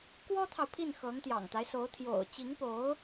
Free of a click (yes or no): yes